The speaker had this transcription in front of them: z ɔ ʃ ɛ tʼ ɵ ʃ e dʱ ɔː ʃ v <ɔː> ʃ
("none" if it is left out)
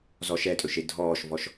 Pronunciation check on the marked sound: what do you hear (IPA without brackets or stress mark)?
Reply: ɔ